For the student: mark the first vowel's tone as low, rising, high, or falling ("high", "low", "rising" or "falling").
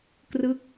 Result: falling